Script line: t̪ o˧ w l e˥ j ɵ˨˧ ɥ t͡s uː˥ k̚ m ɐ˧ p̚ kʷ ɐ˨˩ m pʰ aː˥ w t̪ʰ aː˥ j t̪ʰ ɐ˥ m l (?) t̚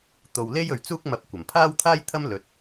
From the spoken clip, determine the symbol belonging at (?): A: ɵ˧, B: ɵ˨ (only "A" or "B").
A